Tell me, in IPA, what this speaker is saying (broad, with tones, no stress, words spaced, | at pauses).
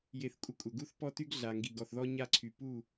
je˧θkʷʼə˦ kʷʼə˨ɡu˦θ pɔ˦ty˦ɡ ɮa˨ ŋɡi˨ɡɔ˨θðɔ˦ ɲa˦ǀʰy˨ pu˦˨